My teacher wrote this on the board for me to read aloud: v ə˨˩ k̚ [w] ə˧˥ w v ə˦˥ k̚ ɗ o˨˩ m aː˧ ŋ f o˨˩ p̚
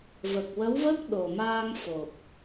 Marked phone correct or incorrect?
correct